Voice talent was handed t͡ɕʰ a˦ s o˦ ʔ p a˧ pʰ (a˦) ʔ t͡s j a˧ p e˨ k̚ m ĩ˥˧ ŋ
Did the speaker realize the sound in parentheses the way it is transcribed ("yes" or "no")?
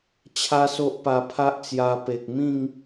yes